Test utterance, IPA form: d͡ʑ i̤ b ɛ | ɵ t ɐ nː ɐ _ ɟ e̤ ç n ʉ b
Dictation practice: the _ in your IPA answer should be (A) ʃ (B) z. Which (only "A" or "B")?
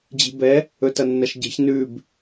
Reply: A